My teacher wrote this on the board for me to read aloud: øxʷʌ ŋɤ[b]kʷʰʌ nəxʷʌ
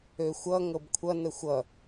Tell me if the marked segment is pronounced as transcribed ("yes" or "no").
yes